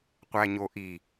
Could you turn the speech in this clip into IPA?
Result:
qʷ æ ɲ o ʔ i

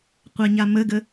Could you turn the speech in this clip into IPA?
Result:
qʷ a ɲ a m ə ɡ ə

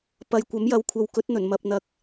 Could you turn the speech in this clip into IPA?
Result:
p ɐ˨˧ j kʷ ɐ˨˥ m j ɐ˨ w kʷʰ ɐ˨ w k ɵ˨˥ t̚ n̪ ɵ˨˩ n m ɐ˨ p̚ n̪ ɐ˨ k̚

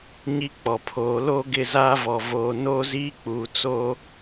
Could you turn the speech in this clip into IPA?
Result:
ɲ i˦ k͡p ɔ˨ pʰ oː˨˦ l oː˦ ɡ ɪ˦˨ z aː˦ v ɔ˨ v oː˨ n oː˦ z iː˦ k͡p uː˨ t͡s oː˦

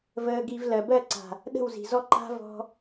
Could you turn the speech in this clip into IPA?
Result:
v əː˧ ɡ i˧ v l ɜ˨ b ɜ˦˨ ǀ a̤˨ | ɗ ə̤˦˨ w z i̤˨ z ɔ˦ ǃ a̤˦ v ɔ̤˦

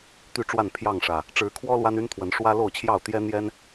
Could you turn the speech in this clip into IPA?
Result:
t̪ y˥˨ ʈ͡ʂ w a˥˨ n pʰ j ɑ˥˨ ŋ ʂ ä˨˩ | ʈ͡ʂ ɻ̩˨˦ kʰ w ɔ˦ l w a˦ n y˦ n t̪ʰ w ə˨˦ n ʂ w ä˦ l o˥˨ ʊ̯ t͡ɕʰ j ɑ˥˨ ʊ̯ t̪ j ɛ˦ n̪ j ɛ˦ n

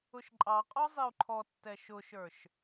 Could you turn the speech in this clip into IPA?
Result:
ʊ ʃ ǃʼ ɑ qʼ ɔ zˤ i u̯ ǃʰ ɔ tː ɛ ʃ ʊ ʃ ə˞ ʃ

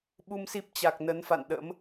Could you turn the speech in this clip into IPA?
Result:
ɓ u˧ m s i˦˥ p̚ t͡ɕ a˨˩ k̚ n ə˨˦ n f a̰˧˨ n ɗ ə̰˧˥ m

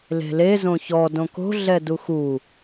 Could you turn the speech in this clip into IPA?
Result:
l e̤ l e z õ ç ɔ d õ k o̤ ɮ ɛ d u x u

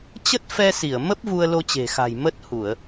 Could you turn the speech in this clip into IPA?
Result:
t͡ɕ ə˦˥ t̚ f ɛ˧ s i˧˩ ə̯ m ə˦˥ p̚ v u˧ ə̯ l o˧ t͡ɕ e̤˨˩ x a̤˨˩ j m ə˦˥ t̚ h u˧˩˨ ə̯

